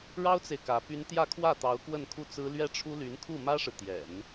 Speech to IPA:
ɻ ɑ˥ ʊ̯ t͡s e˨ ɪ̯ k ä˧˥ p y˥ n t̪ j ä˥˧ kʰ w ä˥˩ t̪ ɑ˧˥ ʊ̯ k w ə˥˧ n kʰ u˥˩ t͡s ɹ̩˥ l ɥ ɛ˥ ʈ͡ʂʰ u˥ l y˧˥ n kʰ u˥˩ m ä˥ ʂ ɻ̩˨ t̪ j ɛ̰˨˩˦ n

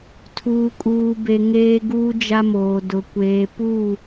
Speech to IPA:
tʰ uː˨ kʼ uː˨ b e˨ ŋ eː˦ ɡ uː˦ d͡ʒ a˦ m oː˨ d ʊ˨ kʷ eː˨ p u˦˨

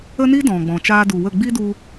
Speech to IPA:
ə˦ n i˦ d ɔ̃˨ ɡ͡b ɔ̃˨ t͡ʃ aː˧ d u˨ w ə˦˨ ɡ͡b i˦ d u˧

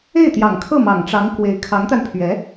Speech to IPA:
e˥˩ ɪ̯ t̪ j ɑ˨˩ ŋ kʰ ɤ˥˩ m ɑ˨˩ ŋ ʈ͡ʂ ɑ˧˥ ŋ k w e˧˥ ɪ̯ kʰ ɑ˧˥ ŋ t̪ a˧ n pʰ ɥ ɛ˧˥

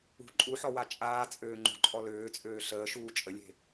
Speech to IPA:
ṳ ǃʼ u ħ ɔ w a t͡ʃʼ aː t͡sʼ øː ŋ͡ǃ ṳ ǃʼ ɔ l øː t͡sʼ øː ɬ əː ʃ uː t͡ʃʼ ə lʲ e̤

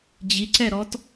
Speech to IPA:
d͡ʑ i ǀ ɛ ɾ ɔ t

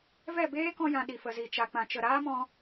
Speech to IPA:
v ɛ˦˨ b eː˦ k ɔ̃˧ j ã˨ ɗ i˨ f ə˨ z i˨ t͡ʃ a˧ k͡p ã˧ t͡ʃ ə˧ ɾ aː˦ m ɔ̃˧

